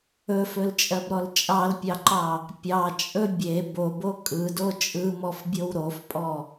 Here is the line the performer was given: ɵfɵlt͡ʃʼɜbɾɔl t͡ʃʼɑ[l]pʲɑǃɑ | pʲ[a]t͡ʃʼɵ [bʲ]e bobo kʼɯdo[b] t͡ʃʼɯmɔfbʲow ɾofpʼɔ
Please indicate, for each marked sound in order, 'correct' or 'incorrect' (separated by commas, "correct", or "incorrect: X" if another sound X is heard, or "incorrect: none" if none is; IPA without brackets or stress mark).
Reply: correct, incorrect: ɑ, correct, incorrect: none